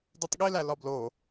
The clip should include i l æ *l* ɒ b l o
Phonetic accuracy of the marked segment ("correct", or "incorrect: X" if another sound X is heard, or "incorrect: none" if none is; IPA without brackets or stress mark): correct